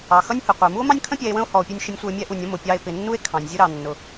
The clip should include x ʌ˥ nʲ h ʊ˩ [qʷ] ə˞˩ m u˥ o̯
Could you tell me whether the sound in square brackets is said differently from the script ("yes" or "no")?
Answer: no